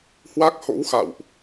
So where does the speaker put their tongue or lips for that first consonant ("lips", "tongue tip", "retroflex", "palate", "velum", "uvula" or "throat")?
throat